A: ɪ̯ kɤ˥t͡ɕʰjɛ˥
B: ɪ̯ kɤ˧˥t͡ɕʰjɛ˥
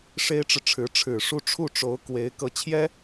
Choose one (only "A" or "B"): B